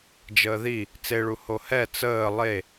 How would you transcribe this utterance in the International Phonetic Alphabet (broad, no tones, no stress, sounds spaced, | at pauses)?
d͡ʒ əː ð i | t͡s e ɭ u h o h ɛ t͡s əː lˠ e